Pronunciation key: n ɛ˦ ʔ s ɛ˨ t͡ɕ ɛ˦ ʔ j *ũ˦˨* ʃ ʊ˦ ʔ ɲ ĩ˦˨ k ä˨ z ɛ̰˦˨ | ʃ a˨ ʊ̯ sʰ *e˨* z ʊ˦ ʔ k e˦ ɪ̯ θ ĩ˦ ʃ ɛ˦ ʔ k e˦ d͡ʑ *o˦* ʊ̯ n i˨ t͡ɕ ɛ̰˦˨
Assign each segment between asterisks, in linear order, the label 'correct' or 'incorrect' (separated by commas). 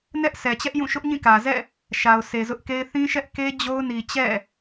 correct, correct, correct